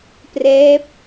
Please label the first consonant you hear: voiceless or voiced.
voiceless